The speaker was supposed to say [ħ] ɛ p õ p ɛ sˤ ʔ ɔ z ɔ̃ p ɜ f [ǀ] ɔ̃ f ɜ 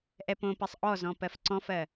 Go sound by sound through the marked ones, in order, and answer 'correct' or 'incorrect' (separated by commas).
incorrect, correct